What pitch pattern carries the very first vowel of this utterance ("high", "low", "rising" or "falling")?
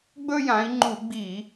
high